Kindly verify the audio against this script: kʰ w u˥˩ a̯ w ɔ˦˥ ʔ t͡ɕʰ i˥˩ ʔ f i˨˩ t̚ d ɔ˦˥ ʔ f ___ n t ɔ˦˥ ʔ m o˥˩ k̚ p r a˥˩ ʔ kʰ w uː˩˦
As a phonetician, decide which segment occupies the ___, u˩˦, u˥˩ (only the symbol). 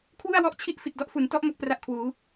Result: u˩˦